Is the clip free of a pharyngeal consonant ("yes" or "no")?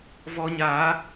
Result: yes